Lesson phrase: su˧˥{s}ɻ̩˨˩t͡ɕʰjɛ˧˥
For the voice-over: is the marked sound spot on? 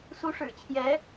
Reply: no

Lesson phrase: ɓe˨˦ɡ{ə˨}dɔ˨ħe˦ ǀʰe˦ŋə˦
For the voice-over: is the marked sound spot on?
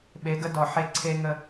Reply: no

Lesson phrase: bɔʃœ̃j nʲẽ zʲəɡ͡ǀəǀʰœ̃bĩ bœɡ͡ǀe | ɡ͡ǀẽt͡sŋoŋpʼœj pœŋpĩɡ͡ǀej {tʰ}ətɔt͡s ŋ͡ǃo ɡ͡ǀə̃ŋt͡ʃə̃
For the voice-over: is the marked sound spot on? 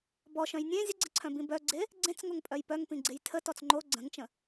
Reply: yes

